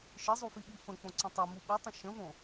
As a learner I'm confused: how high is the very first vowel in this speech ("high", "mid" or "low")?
high